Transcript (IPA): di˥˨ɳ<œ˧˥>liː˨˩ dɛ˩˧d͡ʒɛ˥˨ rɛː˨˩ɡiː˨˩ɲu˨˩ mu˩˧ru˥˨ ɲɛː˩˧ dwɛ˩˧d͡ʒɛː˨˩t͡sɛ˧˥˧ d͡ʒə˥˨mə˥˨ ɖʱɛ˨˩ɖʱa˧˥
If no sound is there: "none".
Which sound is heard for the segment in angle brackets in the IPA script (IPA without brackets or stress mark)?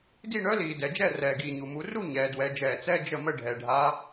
œ˧˥